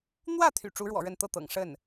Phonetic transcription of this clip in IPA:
n̪ w ä˥˩ t̪ʰ y̰˨˩ ʈ͡ʂ u˧˥ ɻ w ɔ̰˨˩ ɻ ə˥˧ n t̪ ɤ˥˩ t̪ ɤ̰˨˩ ŋ ʂ ə˥˩ n

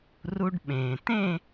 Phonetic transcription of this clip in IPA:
r u˧ ɖ ɓ ẽː˩ t ẽ˥˧

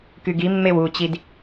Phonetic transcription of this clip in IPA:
k y ɡ i mː e w u t͡ɕ i d

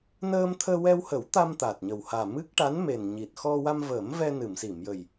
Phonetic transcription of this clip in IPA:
n əː˧ m t̪ʰ əː˧ w ɛ˧ w h ə˨˩˦ w t̪ a˧ m t̪ aː˨˩ t̚ ɲ ə˨˩ w h aː˨˩ m ɨ˦˥ k̚ ʈ a˧˥ n m e˨˩ n ɲ i˨˩ t̚ x ɔ˧ w a˧ m v əː˨˩˦ m v ɛ˧ n ɨ˨˩˨ m s i˨˩˨ m j ə˨˩ j

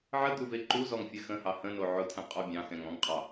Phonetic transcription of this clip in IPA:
ʕ ə d̪ u v e ǃ u z ɔ ŋ fʲ ɛ x ə̃ h ɑ h ə̃ n o ʕ ʊ tʰ ɛ̃ qʼ ɔ bʲ ɑ̃ x ɛ̃ ŋ ɔ̃ ŋ qʼ ɑ

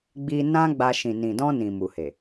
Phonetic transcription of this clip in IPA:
ɡ͡b i˧ n ã˦ ɡ͡b a˧ ʃ ĩ˨ n ĩ˨ d ɔ̃˧ n ĩ˨ m u˨ h e˨

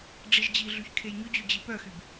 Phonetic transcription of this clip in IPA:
ɖ͡ʐ i ʒ d͡ʑ i ɮ y ç kʰ e j ɲ ɵ d͡ʑ y d͡ʑ i p œ x y b

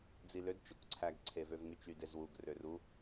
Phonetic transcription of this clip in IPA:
d͡z i l ø d t͡ʃ o k ǀʰ æ ɡ ǀʰ e v ø v ŋ y t͡ʃ y d e z w u ɡ r ø r u

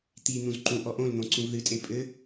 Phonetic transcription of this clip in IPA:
t̪ i n̪ ũ z ǃ ũ ʔ ɔ ʔ õ l n̪ õ ǀ ũ v ð ɨ tʼ e pʼ ɘ

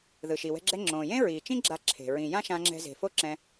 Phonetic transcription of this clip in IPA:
ð ɯ˩ ʃ i˩ w ɛ̤˧ ɡ͡ǁ ɛ˧ ŋ͡ǁ õː˩ j ẽ˥ ɹ iː˩ t͡ʃ ĩ˥ ɡ͡ǁ a˧ ǁʰ e̤˩ ɹ ĩ˩ j ã˥ ʃ ã˧ ŋ͡ǁ ɛ̤˧ z e̤˩ f o˥ ǁ ɛ̃˧

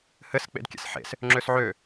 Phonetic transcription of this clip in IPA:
h ɘ s k͡p ḛ d kʲ ɛ̰ s ħ ḛ s | ŋ͡ǁ ø s ʕ ø

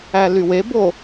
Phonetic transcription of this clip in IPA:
æ l y w e b o

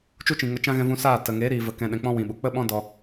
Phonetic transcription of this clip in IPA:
t͡ʃ u˦ t͡ʃ ĩ˨ ŋ ə˧ t͡ʃ ã˦ ɣ ɛ̃˧ v ũ˧ s aː˦˨ t ə˨ ŋ e˨˦ ɾ iː˨ v ə˨ k ɛ̃˨ ɗ ɛ̃˨ k͡p ɔ̃˧ w ĩ˨ ɓ u˨ k͡p ə˦ ɓ ɔ̃˦ d ɔ˧

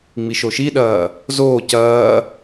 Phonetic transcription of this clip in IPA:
ŋ͡m i ʃ o ʃ i ɗ ɐː | z oː c ɐː

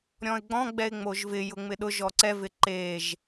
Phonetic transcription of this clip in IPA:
ɾʲ ɔ̃ ɪ̯ ɡ͡b ɔ̃ ɡ͡b ɛ ɪ̯ ŋ͡m o ʒ v ɪ j ʊ ŋ͡m ɪ ɗ ʊ ʒ ɔ ǀ ɛ v ɪ ǃ e ʒ

